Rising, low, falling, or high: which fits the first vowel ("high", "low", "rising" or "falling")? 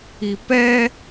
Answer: low